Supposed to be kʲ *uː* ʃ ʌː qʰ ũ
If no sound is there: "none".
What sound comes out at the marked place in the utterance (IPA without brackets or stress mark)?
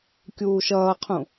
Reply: uː